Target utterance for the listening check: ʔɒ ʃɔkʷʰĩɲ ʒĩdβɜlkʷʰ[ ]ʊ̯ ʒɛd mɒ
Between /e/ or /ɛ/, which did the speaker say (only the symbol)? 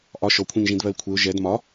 e